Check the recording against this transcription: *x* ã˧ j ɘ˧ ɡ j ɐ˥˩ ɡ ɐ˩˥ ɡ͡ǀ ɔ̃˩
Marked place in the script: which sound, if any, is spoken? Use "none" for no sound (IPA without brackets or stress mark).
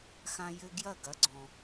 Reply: x